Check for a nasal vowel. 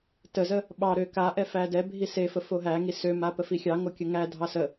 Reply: absent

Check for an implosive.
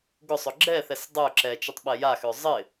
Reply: present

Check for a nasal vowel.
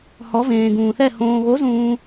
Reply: present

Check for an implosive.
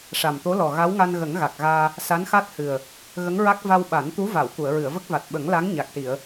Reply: present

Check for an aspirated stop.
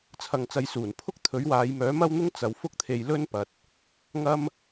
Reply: present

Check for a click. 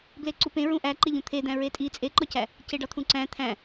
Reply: present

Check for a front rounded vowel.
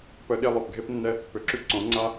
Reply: present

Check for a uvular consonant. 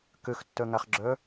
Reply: present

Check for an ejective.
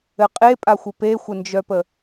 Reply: present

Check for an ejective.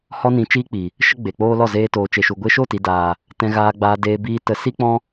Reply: absent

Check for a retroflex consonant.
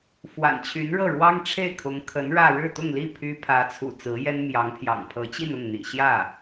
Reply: present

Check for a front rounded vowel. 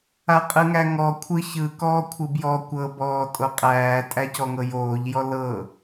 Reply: absent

